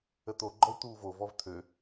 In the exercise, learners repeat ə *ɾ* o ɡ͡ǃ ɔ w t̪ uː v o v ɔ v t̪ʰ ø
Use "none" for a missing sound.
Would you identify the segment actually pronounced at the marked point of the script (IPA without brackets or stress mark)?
t̪